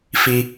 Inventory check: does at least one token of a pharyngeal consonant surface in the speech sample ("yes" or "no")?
no